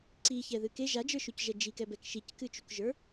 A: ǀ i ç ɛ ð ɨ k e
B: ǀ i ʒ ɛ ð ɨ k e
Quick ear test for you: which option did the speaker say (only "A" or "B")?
A